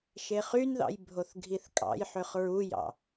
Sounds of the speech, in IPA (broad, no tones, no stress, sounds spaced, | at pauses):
ʃ e χ y n ð ɑ̰ j bʱ o θ ɡʱ i θ kʼ ɑ̰ j ħ ø χ ɹ u j ɑ̰